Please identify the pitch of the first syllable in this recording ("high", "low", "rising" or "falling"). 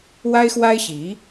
high